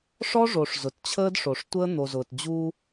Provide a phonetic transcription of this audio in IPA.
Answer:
ʂ ɔ˦ ʐ o˨ ʂ z ʊ˨ t t͡ɕʰ əː˦ d ʂ o˨ ʂ tʷ əː˦ n̪ o˨ z ʊː˨ t d͡ʑ uː˦

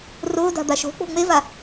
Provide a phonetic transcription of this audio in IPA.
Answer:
r ʊː d a̤ d̪ a ʃ o̤ k͡p o̤ ŋ͡m e v a

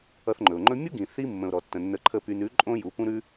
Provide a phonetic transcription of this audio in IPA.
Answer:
ʌ˧ θ ŋ͡ǃ ɵ˨ ʊ̯ ŋ͡ǃ ɵ˦ mʲ u˦ ɡ ĩ˨ θ i˦ mː ə̃˨ ʊ̯ ɾ ɔ˨ tː ə̃˨ nː ə˧ ǃʰ ə˦˨ p y˧ n ʉ˨˦ ǃʼ õ˦ j u˨˦ p ũ˦ ɾ ʉ˦

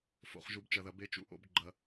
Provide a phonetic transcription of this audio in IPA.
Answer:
f o̰˨ χ ʒ u˨ b t͡ʃ ɐ˨ ð ɐ˨ b e˦ t͡ʃ ṵ˦ ʔ o̰˦ b ɡ͡ǃ ɐ˦

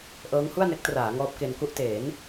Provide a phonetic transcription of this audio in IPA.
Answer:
ʔ ɤː˦˥ ŋ h u˥˩ a̯ n e˦˥ k̚ t r aː˩˦ ŋ ɔː˦˥ p̚ k e˧ n k u˥˩ ʔ t eː˩˦ n

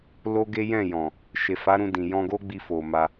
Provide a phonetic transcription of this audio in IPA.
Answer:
l o˦ ɡ e˦ j ɛ̃˦˨ j ɔ̃˨ | ʃ e˨ f a˨˦ ɾ ũ˧ d ĩ˨ j ɔ̃˧ ɡ o˦ ɡ͡b i˧ f o˧ m a˦

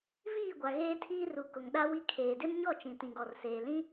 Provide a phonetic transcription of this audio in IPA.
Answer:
v iː˦˨ ɡʷ a˨ ɣ eː˦ tʰ iː˦ r u˨ k ʊ˨ ŋ ɗ a˦ w i˦ kʰ eː˨ d ɪ˦ m ɲ ɔ˦˨ t͡ʃ ĩ˨ t ĩ˨ ɡ ɔ˨ r s eː˨ l ĩ˦

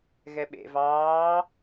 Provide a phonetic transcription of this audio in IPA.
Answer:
ɣ ɛ ɓ ḛ v ɑː

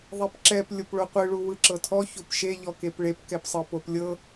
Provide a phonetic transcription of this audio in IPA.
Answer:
ðˤ e p ǁ ɛ p lʲ o p ɭ o qʷ ɯ ɭ u w ɯ ǁ ɤ tʰ ɔ ç o p ʃ e ʎ ɔ k e p ɭ e p k ɛ p sˤ ɤ p o p lʲ ɤ

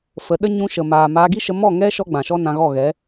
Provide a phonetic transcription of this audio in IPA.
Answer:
f ə˨˦ ɗ ə˦ ɲ ũ˧ ʃ ə˨ m aː˨ m a˧ ɡ i˦ ʃ ə˧ m ɔ˦˨ ŋ ɛ˦ ʃ ɔ˦ ɡ͡b ã˨ ʃ ɔ˦ n ã˧ ɣ ɔ˦˨ ɣ ɛ˨˦

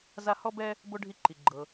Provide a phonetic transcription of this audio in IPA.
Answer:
z a˦ h ɔ˥ b ɛ˥ | b o˥ ɖʱ i˦ ǃ i˩ ɡ͡ǃ ɤ˨

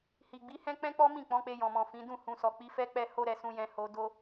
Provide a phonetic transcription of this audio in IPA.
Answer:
h i˨ ɡ͡b i˨˦ h ɛ̃˦ k͡p ɛ̃˦ k͡p ɔ˦ m ĩ˦˨ k͡p ɔ̃˨˦ k͡p e˧ j ɔ̃˨ m ɔ̃˨ f ĩ˨˦ d ũ˦˨ h ũ˨ s ɔ˨ k͡p i˨˦ f ɛ˦ k͡p ɛ˦ h o˦ ɾ ɛ˧ s ũ˧ j ɛ̃˧ h o˧ d o˦

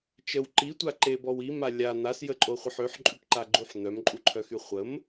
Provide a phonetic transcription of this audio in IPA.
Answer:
t͡ʃ ə w ǃ i tʷ a ǃ e b ɔ w i m a lʲ a n̪ a s j ə ǃʼ o χʷ ə ħ ø ħ ǃʼ y ʈ ǃ a ɡ͡ǃ u ħ n̪ œ m ǃʼ u ǃʰ œ x y χʷ ə m

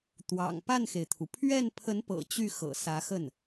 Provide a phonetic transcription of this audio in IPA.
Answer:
t̪ w ɑ̰˨˩ ŋ p a˥˩ n x e˩ ɪ̯ t̪ʰ u˩ pʰ ɥ ɛ˥˩ n pʰ ə˧˥ n p ɤ̰˨˩ t͡ɕ y˥˩ x ɤ̰˨˩ s ä˧˥ x ə˥˩ n

